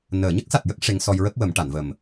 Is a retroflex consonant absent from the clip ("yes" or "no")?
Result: no